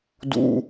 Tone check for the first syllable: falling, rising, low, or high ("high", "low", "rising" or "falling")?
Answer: high